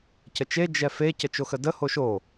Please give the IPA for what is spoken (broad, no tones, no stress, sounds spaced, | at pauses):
c ə t͡ʃ e d͡ʒ ɛ f e c ə t͡ʃ o x ə d ə h o ʃ o